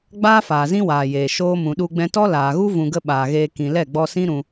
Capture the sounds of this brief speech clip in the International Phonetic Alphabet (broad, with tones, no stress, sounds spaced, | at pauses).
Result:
ɡ͡b aː˦ f aː˨ z ĩ˦ w aː˨ j eː˨ ʃ oː˧ m ũ˨ ɗ u˧ ɡ͡b ɛ̃˧ t ɔ˦ l aː˨ ɣ u˦ v ũ˧ ɡ ə˦ ɓ aː˨ ɣ eː˧ k ĩ˨ l ɛ˦˨ ɡ͡b ɔ˧ s ĩ˦ ɾ ũ˧